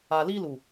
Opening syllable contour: low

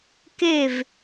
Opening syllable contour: falling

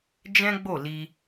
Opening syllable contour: high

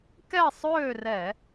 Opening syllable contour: falling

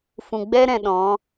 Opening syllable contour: low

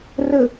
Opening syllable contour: low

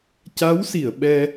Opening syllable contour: rising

